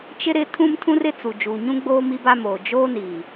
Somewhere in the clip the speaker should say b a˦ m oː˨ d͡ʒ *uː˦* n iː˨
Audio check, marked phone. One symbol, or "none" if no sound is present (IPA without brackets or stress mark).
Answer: oː˦